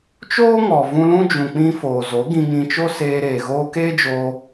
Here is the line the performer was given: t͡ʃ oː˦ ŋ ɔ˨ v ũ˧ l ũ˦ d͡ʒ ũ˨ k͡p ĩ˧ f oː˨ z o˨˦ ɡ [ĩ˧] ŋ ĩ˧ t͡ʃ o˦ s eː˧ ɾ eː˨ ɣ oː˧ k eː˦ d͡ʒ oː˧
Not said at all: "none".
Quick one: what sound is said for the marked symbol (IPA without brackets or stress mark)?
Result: ĩ˧